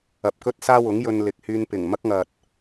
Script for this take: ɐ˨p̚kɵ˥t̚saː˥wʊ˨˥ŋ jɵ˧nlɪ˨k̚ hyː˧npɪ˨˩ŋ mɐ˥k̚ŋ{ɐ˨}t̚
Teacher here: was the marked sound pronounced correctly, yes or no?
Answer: yes